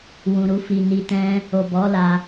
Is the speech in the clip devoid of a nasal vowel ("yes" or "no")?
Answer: no